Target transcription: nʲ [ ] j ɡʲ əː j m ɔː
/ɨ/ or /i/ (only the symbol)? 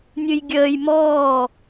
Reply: ɨ